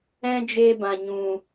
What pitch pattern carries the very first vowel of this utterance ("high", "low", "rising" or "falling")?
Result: high